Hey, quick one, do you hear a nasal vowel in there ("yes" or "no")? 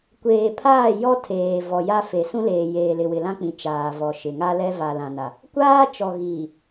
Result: yes